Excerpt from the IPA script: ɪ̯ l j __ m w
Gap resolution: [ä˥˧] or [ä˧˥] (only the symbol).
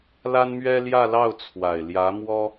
ä˧˥